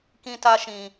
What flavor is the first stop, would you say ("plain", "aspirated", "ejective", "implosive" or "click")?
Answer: plain